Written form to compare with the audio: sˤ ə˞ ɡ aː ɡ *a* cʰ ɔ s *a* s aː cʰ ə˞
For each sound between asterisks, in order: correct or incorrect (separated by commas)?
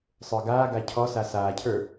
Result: correct, correct